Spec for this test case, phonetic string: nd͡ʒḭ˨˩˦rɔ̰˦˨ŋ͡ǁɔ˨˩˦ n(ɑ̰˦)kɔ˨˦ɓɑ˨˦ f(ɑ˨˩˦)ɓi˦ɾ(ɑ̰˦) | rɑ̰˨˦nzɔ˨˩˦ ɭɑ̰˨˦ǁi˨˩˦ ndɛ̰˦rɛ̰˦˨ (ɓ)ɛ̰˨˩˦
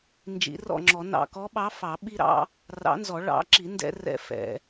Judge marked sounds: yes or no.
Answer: no, yes, yes, no

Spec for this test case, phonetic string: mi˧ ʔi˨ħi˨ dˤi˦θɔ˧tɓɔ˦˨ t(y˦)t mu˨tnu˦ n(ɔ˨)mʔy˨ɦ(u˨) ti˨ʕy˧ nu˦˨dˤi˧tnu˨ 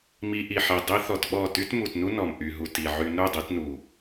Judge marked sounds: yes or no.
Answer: yes, yes, yes

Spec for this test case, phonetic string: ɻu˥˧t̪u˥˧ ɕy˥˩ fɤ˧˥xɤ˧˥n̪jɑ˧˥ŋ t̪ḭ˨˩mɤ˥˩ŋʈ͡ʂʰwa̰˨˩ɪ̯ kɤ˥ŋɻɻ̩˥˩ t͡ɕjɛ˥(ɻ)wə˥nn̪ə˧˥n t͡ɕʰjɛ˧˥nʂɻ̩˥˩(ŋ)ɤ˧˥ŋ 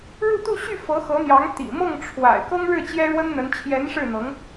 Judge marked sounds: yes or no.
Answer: yes, no

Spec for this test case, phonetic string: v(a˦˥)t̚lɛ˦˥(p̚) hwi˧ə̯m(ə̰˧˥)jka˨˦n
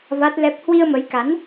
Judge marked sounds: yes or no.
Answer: yes, yes, no

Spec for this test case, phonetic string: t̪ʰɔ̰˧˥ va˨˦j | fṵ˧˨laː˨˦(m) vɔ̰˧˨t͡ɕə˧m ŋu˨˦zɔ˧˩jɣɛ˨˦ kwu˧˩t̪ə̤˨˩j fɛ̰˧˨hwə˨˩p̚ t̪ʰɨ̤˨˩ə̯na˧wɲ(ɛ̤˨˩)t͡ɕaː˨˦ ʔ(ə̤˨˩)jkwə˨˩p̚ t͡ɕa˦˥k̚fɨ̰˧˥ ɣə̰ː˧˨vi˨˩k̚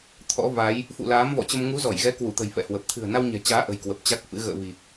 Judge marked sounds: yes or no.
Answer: yes, yes, yes

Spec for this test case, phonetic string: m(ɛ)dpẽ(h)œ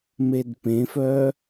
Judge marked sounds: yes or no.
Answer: no, no

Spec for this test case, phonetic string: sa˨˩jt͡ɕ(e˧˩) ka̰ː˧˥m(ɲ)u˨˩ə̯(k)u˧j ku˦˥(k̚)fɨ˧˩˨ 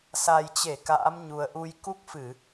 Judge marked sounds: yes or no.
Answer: yes, yes, no, yes

